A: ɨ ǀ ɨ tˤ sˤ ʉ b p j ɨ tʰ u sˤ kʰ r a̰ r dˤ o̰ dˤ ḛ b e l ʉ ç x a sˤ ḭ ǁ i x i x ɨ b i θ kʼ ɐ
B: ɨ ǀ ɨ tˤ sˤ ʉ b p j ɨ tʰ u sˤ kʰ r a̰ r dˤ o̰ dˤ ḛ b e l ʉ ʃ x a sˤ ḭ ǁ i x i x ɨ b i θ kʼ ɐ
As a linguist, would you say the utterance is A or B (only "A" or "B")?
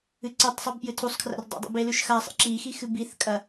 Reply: B